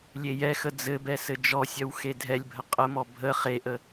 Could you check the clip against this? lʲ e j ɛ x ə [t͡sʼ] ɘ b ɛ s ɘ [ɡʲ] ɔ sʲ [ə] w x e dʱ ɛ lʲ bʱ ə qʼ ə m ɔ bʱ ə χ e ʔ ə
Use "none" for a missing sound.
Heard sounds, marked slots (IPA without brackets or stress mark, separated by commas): d͡z, d͡ʒ, œ